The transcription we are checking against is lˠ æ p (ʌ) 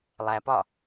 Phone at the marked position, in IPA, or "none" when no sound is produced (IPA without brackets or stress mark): ɒ